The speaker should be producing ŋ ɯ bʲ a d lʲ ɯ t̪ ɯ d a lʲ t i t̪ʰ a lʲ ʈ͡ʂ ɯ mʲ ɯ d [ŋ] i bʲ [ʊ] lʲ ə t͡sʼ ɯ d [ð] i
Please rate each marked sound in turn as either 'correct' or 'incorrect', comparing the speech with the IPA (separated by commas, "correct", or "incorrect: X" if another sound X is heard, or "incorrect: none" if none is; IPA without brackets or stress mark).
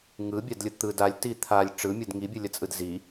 correct, incorrect: ɯ, incorrect: z